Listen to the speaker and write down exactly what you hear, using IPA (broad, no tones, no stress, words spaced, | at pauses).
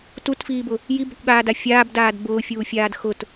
tutfiːbʊ | jibʊkʷɠaːda fʲaːbdaːd bʊːfʲuːfʲaːd xʊt